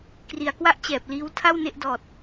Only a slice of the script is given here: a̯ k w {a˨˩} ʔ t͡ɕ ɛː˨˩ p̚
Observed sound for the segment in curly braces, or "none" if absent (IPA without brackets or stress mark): a˥˩